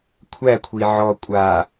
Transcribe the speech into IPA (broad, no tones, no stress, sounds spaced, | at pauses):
kʷʰ æ kʷʰ i ʕ ɔ kʷʼ a